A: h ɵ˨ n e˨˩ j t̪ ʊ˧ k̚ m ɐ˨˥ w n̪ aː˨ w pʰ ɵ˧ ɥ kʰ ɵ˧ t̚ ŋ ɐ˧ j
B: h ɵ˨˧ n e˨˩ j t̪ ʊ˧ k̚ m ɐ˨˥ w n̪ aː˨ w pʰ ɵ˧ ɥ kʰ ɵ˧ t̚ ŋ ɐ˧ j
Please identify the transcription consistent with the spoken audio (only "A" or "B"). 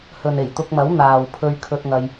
A